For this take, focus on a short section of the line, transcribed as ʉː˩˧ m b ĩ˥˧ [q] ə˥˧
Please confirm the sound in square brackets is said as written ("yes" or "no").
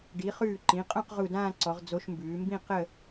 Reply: yes